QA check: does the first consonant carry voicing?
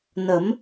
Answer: yes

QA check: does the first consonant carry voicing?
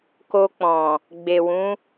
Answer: no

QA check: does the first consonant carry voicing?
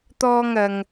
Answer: no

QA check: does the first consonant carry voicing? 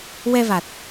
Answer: yes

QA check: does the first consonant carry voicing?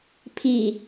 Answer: no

